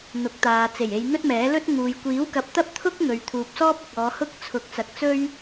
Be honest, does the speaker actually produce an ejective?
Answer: no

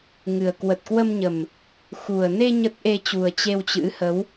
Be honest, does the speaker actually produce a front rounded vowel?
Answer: no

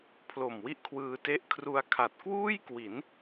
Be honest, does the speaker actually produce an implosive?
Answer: no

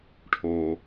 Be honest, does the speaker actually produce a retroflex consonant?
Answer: yes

